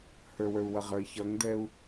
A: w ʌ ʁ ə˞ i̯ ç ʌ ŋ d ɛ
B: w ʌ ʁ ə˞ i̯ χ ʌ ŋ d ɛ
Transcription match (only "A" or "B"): A